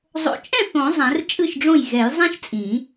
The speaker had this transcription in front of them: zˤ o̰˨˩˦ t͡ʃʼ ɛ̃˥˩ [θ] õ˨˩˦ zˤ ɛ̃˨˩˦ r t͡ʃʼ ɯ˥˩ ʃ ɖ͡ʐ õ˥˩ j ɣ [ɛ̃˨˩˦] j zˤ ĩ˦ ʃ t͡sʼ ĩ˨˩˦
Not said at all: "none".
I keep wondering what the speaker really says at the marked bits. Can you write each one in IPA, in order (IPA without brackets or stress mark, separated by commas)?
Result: θ, ɛ˨˩˦